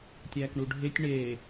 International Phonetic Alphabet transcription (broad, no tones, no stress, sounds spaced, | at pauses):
tʲ æː k ɳ u ɖʱ e tʲ ɳ eː